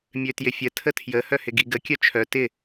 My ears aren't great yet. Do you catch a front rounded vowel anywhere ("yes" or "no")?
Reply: yes